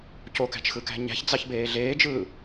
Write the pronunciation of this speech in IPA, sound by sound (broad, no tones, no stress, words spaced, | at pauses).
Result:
cokæ̤t͡ʃxɯkæ̤ ɲæ̤çd͡zɑçbeː ɮeːd͡ʒɯː